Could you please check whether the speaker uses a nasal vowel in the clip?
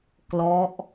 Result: no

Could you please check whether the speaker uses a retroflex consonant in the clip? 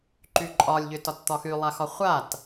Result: no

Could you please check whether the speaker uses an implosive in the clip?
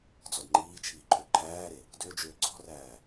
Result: no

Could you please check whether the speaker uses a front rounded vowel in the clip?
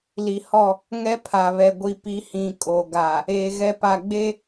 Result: no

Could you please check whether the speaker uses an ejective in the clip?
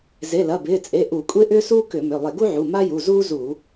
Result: yes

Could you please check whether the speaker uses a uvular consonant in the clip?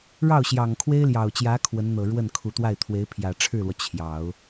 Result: no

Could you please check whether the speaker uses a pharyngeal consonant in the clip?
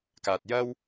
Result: no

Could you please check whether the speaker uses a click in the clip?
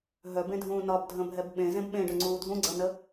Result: yes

